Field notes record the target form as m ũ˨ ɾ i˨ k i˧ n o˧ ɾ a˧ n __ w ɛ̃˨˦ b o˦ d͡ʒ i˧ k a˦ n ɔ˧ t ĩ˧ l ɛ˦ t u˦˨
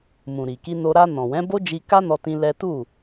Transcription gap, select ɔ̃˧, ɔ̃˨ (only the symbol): ɔ̃˨